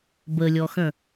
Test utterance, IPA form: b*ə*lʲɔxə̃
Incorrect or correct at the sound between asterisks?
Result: correct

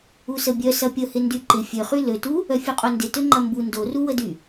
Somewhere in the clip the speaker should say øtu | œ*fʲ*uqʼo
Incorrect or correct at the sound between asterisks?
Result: correct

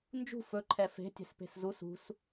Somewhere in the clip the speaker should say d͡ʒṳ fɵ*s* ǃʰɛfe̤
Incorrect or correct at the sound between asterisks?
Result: incorrect: none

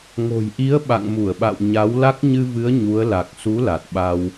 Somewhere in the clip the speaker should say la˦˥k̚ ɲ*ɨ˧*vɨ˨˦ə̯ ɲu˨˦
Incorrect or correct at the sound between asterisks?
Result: correct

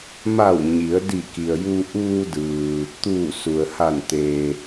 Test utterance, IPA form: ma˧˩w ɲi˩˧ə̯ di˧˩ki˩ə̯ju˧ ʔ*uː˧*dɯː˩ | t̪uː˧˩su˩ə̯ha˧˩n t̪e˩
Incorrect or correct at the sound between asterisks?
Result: correct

